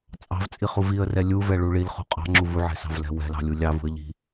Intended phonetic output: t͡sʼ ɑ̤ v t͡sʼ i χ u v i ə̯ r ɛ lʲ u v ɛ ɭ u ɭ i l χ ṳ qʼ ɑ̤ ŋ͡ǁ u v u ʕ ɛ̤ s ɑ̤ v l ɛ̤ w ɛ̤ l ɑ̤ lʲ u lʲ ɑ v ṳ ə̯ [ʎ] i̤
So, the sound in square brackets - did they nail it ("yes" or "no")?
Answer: yes